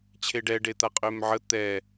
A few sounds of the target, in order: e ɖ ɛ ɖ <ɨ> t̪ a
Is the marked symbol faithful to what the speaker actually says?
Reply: no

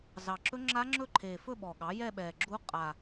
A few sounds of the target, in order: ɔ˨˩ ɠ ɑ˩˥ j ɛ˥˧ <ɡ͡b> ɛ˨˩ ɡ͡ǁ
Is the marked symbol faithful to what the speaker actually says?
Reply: no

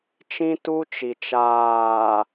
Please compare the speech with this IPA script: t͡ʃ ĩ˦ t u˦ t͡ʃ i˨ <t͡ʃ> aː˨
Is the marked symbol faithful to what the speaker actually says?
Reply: yes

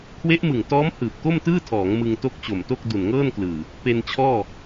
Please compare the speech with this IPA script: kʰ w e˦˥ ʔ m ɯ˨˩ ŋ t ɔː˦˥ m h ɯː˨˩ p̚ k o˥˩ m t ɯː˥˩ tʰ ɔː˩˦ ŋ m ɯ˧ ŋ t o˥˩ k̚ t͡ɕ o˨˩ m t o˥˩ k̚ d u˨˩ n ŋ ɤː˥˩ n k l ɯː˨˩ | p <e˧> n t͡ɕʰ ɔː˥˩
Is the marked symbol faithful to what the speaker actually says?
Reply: yes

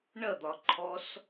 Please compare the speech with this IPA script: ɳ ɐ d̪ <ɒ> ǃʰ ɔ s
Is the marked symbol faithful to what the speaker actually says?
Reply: yes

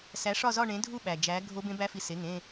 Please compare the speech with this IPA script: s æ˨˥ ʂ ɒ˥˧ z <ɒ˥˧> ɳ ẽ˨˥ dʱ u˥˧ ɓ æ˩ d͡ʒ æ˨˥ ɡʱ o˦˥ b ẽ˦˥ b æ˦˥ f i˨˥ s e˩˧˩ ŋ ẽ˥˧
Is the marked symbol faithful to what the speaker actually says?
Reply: yes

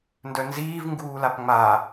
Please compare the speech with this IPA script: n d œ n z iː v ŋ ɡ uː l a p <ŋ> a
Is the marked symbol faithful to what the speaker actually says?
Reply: no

